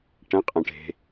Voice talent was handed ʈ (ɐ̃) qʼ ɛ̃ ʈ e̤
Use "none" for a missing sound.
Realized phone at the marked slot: ɐ̃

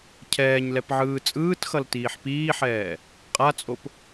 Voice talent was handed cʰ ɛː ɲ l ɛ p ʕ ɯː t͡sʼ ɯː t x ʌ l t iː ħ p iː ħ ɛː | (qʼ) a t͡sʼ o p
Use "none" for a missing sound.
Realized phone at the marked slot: qʼ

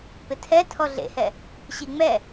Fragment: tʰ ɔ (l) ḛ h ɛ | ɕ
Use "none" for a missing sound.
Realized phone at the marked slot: ɮ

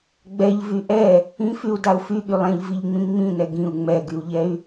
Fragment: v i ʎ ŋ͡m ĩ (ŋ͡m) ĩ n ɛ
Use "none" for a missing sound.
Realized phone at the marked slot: ŋ͡m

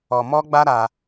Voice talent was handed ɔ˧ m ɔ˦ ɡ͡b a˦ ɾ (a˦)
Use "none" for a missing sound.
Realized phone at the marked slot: a˦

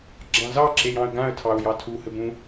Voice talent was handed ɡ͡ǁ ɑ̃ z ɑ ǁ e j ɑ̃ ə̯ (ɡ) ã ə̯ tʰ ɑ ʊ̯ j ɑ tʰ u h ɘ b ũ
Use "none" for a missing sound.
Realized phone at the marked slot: ɡ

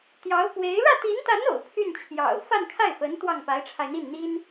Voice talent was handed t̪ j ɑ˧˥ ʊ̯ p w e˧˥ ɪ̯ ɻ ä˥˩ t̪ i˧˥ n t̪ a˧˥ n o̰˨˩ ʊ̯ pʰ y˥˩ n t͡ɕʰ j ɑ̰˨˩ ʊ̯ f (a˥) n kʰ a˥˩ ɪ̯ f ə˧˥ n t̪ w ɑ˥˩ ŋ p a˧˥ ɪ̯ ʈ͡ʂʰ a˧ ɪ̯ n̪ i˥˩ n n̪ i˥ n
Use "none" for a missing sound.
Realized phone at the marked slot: a˥˧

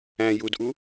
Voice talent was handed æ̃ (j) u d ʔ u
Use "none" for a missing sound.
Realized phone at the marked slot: j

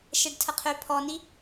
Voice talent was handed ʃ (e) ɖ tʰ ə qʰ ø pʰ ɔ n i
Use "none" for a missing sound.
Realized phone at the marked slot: ɛ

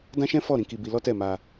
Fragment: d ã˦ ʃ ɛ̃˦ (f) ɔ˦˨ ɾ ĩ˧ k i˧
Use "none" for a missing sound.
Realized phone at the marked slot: f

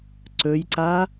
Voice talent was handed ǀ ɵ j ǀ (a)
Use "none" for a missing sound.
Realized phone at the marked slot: a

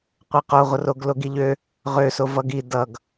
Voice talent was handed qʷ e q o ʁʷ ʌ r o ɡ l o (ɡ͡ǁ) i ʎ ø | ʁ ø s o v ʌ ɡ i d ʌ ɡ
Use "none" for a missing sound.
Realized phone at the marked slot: ɡ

